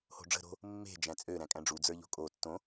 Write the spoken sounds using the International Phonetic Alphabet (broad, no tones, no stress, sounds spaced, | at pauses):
h o̤ ɖ͡ʐ ə̤ ɾ o̤ | mː e̤ d͡ʒ æ̃ t͡sʼ ø ɾ æ̃ kʼ æ̃ ɖ͡ʐ u d͡z ə˞ ʎ o̤ kʼ o tː õ